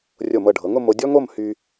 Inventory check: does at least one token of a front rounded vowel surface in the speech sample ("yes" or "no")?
yes